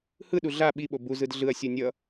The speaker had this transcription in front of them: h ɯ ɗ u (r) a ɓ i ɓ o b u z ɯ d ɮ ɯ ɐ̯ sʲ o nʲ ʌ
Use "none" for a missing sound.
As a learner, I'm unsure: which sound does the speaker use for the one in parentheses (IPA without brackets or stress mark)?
ɮ